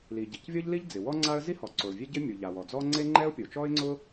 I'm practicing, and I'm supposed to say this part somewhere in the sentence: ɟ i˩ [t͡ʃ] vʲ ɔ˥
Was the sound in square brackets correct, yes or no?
no